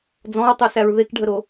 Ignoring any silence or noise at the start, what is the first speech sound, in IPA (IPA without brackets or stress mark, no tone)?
d͡z